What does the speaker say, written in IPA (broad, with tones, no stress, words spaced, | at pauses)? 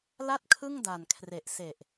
la˥˩t̚kʰɯ˥˩ŋda˨˩n kʰre˨˩ʔse˨˩ʔ